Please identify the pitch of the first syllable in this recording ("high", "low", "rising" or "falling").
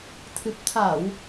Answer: low